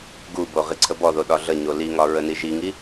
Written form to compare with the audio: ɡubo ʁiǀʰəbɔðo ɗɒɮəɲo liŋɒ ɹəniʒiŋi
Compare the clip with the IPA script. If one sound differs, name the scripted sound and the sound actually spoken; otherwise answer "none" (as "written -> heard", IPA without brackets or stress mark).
none